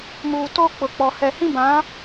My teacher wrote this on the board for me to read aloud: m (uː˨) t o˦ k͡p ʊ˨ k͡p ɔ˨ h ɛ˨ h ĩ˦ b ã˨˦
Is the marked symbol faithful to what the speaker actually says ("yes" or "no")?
yes